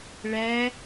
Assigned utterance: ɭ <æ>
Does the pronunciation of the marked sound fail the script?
yes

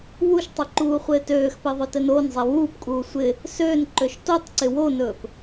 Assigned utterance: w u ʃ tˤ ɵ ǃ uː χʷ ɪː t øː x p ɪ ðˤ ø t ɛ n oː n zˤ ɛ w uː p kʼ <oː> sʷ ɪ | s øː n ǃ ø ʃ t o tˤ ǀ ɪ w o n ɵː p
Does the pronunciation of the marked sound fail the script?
yes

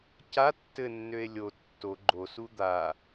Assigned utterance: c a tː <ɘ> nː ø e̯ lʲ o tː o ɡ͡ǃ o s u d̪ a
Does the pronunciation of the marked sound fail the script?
no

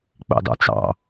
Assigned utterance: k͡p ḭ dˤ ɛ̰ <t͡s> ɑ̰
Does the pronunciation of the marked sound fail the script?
no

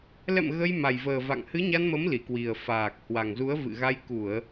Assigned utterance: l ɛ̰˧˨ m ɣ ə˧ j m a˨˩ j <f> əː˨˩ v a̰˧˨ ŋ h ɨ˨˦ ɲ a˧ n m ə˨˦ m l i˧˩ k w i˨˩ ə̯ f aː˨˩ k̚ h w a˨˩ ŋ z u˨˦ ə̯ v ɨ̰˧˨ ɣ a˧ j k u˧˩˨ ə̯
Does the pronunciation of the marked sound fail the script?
yes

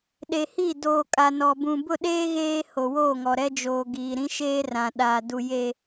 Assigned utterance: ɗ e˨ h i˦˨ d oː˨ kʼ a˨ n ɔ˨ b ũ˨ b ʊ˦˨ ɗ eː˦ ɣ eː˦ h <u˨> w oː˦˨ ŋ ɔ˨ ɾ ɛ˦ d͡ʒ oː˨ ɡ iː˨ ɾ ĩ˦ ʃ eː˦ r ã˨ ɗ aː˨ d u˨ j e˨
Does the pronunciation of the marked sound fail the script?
yes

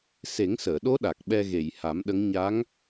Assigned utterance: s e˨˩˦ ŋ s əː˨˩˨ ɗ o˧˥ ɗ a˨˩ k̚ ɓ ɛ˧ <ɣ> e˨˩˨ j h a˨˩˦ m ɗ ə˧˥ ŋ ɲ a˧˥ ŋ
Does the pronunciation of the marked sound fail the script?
no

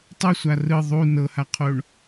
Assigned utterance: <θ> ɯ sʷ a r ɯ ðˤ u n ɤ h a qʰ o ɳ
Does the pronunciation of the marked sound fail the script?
yes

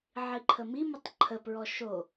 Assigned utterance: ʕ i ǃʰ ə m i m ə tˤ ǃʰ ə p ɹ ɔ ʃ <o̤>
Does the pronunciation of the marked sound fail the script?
yes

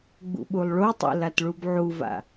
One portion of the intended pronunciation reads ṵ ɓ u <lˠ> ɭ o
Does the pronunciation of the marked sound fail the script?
no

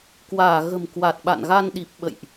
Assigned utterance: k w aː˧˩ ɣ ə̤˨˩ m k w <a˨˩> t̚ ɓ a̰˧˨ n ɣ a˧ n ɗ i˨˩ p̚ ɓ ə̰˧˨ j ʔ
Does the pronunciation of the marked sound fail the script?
no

